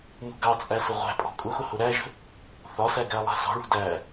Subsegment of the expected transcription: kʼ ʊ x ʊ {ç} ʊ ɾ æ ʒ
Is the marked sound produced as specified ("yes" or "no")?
no